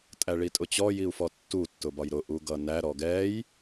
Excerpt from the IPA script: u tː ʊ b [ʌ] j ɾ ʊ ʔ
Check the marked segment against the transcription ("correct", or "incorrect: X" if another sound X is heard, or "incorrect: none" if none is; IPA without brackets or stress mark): incorrect: ɒ